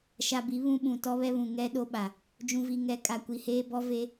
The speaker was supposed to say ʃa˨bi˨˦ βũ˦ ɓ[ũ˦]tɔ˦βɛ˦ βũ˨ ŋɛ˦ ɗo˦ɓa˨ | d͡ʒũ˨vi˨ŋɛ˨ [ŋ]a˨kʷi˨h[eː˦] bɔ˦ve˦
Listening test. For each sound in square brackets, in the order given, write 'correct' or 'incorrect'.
incorrect, incorrect, correct

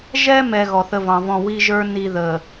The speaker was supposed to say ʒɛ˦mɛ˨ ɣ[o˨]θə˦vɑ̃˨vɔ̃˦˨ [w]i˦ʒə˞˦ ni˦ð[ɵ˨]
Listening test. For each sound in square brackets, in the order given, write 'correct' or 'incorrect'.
incorrect, correct, incorrect

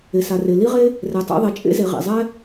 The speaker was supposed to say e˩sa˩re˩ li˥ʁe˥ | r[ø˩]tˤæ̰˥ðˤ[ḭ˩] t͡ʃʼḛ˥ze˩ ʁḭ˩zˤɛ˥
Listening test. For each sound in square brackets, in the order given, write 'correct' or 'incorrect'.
incorrect, incorrect

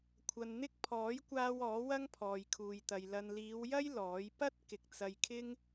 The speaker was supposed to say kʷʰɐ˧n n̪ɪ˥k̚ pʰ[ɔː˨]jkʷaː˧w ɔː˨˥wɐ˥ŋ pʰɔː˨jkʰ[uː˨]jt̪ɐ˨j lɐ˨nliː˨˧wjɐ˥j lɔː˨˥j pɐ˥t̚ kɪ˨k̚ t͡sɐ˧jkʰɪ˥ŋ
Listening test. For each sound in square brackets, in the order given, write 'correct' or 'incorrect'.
incorrect, correct

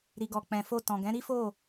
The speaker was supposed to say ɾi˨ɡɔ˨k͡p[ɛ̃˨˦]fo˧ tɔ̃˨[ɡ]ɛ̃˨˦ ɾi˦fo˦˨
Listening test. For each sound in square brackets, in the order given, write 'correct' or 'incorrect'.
incorrect, correct

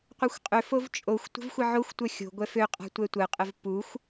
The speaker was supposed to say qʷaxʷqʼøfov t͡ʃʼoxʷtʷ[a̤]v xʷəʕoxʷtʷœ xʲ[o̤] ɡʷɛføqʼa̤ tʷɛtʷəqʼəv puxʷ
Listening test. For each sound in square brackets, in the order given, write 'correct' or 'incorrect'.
incorrect, correct

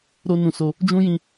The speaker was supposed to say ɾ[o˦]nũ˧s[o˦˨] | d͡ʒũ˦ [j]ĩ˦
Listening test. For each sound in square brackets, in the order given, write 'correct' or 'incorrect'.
correct, incorrect, correct

